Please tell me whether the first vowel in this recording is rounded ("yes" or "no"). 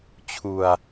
yes